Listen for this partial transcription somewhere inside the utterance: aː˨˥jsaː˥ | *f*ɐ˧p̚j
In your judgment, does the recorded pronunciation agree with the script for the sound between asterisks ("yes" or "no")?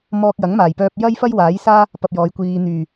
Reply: no